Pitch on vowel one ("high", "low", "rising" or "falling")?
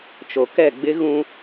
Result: low